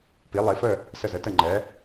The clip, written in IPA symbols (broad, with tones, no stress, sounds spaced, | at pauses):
p i˩˧ lˠ i˩˧ f ə˧˩ | s ə˧˩ z ə˩˧ t ə˧˩ ŋ͡ǃ ɛ˩˧